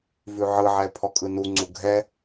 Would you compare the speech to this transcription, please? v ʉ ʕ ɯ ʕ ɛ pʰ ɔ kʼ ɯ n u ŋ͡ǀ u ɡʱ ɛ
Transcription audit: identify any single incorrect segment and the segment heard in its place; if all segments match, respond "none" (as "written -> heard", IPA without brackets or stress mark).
none